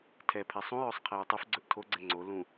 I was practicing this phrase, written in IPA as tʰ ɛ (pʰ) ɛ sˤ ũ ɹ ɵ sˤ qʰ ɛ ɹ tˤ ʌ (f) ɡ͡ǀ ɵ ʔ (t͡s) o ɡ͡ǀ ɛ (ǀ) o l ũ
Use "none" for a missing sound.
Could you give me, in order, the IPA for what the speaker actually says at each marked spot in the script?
pʰ, f, tʰ, ŋ͡ǀ

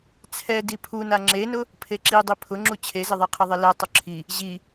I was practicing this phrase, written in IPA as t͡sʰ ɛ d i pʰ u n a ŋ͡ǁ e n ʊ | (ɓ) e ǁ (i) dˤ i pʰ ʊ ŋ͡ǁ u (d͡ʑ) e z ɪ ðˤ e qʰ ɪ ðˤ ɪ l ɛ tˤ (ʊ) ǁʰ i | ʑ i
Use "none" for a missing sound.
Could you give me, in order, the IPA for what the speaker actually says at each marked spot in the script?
pʰ, i, t͡ɕʰ, ʊ

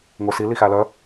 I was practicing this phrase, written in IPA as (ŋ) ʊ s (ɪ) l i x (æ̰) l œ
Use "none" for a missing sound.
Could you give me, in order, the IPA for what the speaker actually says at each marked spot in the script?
ŋ, i, æ

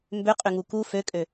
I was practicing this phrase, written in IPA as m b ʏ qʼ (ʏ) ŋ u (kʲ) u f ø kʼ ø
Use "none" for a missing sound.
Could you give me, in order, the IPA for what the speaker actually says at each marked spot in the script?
ʏ, k

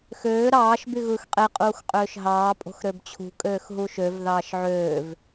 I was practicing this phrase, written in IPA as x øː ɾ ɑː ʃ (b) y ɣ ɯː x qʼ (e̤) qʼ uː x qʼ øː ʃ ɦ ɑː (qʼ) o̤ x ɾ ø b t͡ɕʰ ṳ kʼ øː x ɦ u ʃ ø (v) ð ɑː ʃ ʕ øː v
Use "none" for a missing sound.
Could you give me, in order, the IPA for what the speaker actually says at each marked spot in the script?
b, e, pʼ, v

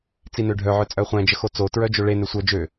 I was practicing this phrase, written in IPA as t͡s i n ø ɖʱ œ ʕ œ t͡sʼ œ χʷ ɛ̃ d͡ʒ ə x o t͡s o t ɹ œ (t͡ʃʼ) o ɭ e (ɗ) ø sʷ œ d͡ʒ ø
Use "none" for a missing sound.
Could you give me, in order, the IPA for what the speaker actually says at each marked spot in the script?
d͡ʒ, n

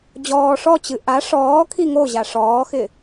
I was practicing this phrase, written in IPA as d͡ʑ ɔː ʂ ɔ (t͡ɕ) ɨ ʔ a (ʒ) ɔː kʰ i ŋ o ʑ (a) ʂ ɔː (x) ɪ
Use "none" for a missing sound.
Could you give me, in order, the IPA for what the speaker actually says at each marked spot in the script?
t͡ɕ, ʂ, a, x

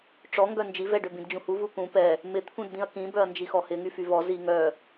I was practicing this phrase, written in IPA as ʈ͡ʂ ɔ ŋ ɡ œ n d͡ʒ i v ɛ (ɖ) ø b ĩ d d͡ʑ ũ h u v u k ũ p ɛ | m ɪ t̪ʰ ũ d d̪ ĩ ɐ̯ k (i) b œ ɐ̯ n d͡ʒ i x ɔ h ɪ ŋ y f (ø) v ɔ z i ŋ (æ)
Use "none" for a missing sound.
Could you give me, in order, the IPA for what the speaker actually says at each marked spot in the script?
ɖ, ĩ, y, œ

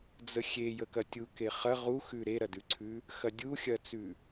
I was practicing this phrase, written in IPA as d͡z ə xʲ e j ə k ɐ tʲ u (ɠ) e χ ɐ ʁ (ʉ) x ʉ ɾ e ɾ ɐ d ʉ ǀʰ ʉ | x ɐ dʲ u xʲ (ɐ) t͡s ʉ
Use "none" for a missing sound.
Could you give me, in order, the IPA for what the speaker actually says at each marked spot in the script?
k, u, ɐ

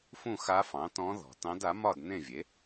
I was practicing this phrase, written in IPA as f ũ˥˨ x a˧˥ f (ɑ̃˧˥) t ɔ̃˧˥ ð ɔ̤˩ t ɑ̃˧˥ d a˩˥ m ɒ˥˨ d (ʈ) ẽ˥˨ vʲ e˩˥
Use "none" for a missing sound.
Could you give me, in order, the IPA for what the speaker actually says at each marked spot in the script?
ɑ̃˩˥, n̪

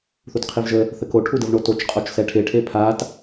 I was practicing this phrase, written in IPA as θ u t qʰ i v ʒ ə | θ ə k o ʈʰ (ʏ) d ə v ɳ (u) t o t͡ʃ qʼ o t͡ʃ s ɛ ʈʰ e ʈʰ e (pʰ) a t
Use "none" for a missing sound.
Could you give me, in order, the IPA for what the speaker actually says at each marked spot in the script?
u, o, pʰ

